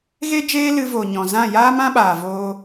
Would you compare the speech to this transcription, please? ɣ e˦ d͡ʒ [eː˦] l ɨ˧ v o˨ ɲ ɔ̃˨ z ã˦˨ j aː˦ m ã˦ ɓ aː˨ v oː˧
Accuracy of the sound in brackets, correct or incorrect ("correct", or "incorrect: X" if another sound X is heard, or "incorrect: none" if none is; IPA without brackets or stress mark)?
correct